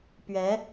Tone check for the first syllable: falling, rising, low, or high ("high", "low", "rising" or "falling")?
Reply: rising